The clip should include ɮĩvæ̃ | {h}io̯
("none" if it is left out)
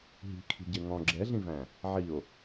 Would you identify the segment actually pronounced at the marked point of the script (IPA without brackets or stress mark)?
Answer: ʕ